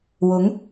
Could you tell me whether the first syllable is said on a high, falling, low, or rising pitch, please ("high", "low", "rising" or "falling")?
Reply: rising